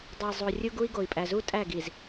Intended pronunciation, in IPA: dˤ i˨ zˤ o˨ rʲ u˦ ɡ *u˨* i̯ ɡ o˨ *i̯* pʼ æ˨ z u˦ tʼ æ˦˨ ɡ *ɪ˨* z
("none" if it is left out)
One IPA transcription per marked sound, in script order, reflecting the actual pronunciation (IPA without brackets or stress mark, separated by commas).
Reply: u˦, i̯, i˨